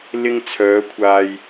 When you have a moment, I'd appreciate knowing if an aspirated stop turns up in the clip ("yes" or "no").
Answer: yes